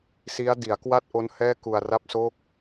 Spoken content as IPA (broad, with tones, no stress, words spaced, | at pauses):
si˦˥a̯ di˩˦a̯kwa˥˩t̚ʔo˦˥n hɛː˥˩ku˧a̯ra˥˩p̚ so˥˩k̚